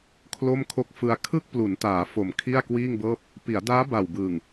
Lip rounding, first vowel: rounded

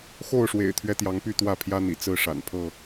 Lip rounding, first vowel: rounded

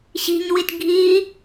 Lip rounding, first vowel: unrounded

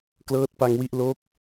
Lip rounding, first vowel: unrounded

